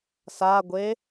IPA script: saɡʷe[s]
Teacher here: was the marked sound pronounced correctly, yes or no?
no